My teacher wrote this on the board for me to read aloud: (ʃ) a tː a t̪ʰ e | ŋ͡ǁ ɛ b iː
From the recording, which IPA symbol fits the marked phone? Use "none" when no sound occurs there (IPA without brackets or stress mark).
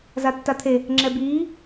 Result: z